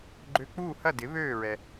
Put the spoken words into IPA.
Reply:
ɡ͡ǃ ø˧˩ k͡p uː˥˨ h ɐ˥˨ d ɪ˩˥ β øː˥˨ ɹ ɛ˩

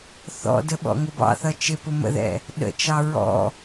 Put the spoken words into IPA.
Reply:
θ ɔ̰ d ə ɓ ɔ̰ ŋ ʊ b ɑ̰ θ ʌ t͡ʃ ɪ p ʊ m ə̰ ð ɛ̰ | ɗ ə̰ t͡ʃ ɑ ɹ ɔ̰

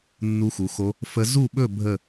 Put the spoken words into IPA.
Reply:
nː u˧˥ x u˩˧ x o˧˥ | f ə˧˥ z u˥˨ ɓ ɵ˥˨ bʱ ə˥˨

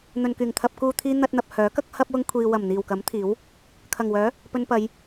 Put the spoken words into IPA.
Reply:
n̪ ɵ˨ n k yː˨˩ ŋ t̪ʰ ɐ˨ p̚ k uː˨ t̪ʰ iː˧ n̪ ɐ˧ t̚ n̪ ɐ˨ p̚ h œː˨˥ k ɐ˥ k̚ h ɐ˥ p̚ w ʊ˥ ŋ kʷʰ iː˧ w ɐ˨˩ m n̪ iː˨˩ w k ɐ˨˥ m t̪ʰ iː˨˥ w | kʰ ɐ˨˩ ŋ w œː˨˥ | p ɵ˧ n p ɐ˨˧ j

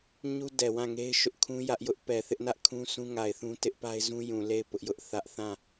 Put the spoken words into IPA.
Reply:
ɲ u˦ d ɛ˨ w ã˦˨ ŋ e˦ ɪ̯ ʃ ʊ˦ ʔ kʰ ũ˦ j ä˦ ʔ j ʊ˦ ʔ p ɛ˨ θ ɪ˦ ʔ n ä˦ ʔ kʰ ũ˦ s ũ˦ ŋ a˨ ɪ̯ θ ũ˦ t ɪ˦ ʔ p a˦ ɪ̯ z ũ˦ j ũ˨ l e˦˨ ɪ̯ p ʊ˦ ʔ j ʊ˦ ʔ θ ä˦ ʔ θ ã˦˨

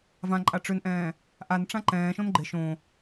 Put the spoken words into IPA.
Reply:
v ã ǃʼ a ʈ͡ʂ ø n ʔ ɛ̃ː | ʔ a n ʈ͡ʂ ã ǃ ɛ̃ː ʃ õ n ɡ͡ǃ ɪ ʃ õ

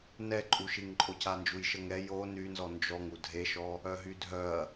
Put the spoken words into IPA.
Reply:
n ɛ ǃʼ u ʃ i ŋ ǃʼ o c a n d͡ʒ u j ʃ ə ŋ ɛ j o n y n z ɔ n d͡ʒ ɔ ŋ u dʱ e ʃ ɔ | œ ɦ y dʱ œ ɐ̯

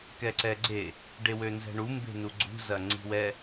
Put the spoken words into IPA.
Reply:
k ɛ ǀ ɛ ɡ͡ǀ e | ɖ e w ø n z ɛ̤ ɳ u m b e̤ n u ɡ͡ǀ ṳ z ɐ ŋ͡ǀ i̤ w ɛ

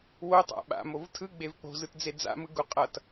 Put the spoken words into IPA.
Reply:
w o tˤ a̰ ɓ a̰ m o v tʰ ɯ ɡ͡b e v k͡p o̤ z ɯ t d͡z e d͡z a̰ m ɯ ɡ u qʼ ʌ t

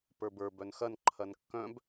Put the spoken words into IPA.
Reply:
p ə˞ b ə˞ b œ n x ɐ n ǃʰ ɐ n kː œ̃ b

